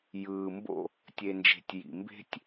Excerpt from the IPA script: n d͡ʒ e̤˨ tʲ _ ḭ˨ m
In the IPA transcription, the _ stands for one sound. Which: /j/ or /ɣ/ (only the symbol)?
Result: j